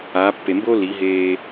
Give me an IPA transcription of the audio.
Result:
aː˩˧ pː e˩ m b o˥ l i˩˧ ɦ eː˧

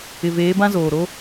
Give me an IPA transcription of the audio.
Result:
ɪ˨ v eː˨˦ b ã˦ z oː˨ ɾ o˦

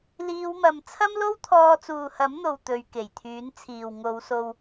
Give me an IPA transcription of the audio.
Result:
l iː˨˧ w m ɐ˨ m t͡sʰ ɐ˥ m l o˥ w t̪ʰ ɔː˧ t͡s uː˨ h ɐ˨˥ m n̪ o˨ w t̪ ɵ˨˧ ɥ k e˨˩ j t̪ʰ yː˨˥ n t͡sʰ iː˨ w ŋ o˨˧ w s o˧ w

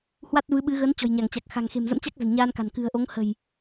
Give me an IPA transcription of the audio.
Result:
h w a˦˥ t̚ v ɨ˨˦ ɓ ɨ˨˦ ɣ ə˨˦ n t͡ɕ ɔ̤˨˩ j ɲ a˧˩ ŋ t͡ɕ a˨˩ k̚ x a̤˨˩ ŋ x e̤˨˩ m z ə̰˧˥ m t͡ɕ a˦˥ k̚ z ə̤˨˩ n ɲ aː˧ n k a̤˨˩ n k ɨ̤˨˩ ə̯ ʔ o˨˦ ŋ h ə̤˨˩ j

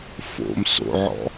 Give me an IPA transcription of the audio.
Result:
f o̰ m s o̰ ʕ ɔ̰

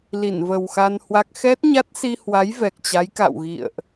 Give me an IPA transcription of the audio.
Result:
l i˧˩ n v ə˨˩ w x a˧ n h w a˦˥ k̚ x ɛ˦˥ t̚ ɲ a˦˥ t̚ s i˧ h w a˨˦ j v ɛ˨˩ k̚ t͡ɕ a˨˦ j k a̰˧˨ w ɣ ḭ˧˨ ə̯ ʔ

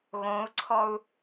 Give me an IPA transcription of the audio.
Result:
ɣ õ u̯ ǀʰ ɔ u̯

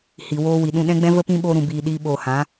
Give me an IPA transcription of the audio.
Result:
h i˨ w oː˧ w i˨ ɗ ũ˧ ɗ ɛ̃˦ ɡ͡b ɛ̃˦ v ə˧ p ĩ˧ ɓ oː˧ ɾ ũ˨ b iː˨ ɗ iː˧ ɓ oː˨ h ã˨˦

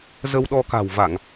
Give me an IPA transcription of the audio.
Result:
z ə˧ w ɗ ɔ˧ k a̤˨˩ w v a˧˩˨ ŋ

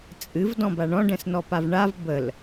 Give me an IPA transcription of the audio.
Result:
t͡sʼ ɨ v d ɔ̃ b a ɳ ɔ̃ ɖ ɛ̃ s n ɔ p a v ɳ a v b ə l

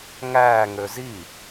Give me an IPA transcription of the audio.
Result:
ŋ æː ŋ ø z i

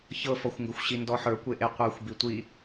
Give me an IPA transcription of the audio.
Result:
ç ɤ f ɔ xʷ ŋ ɡ ɵ xʷ ɕ i n d ɔ ħ ə˞ kʷ e ʔ e qʷ ə˞ xʷ b i tʷ i

